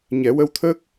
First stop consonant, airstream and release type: aspirated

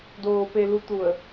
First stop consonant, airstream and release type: plain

